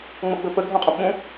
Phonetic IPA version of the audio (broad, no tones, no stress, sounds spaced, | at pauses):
ŋ͡m ɤ ɡ͡b ɵ p ə ɡʱ õ qʼ õ p ɓ ũ